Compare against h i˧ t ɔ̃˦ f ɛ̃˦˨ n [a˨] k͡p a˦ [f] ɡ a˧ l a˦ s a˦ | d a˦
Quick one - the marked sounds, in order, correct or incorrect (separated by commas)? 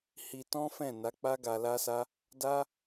incorrect, incorrect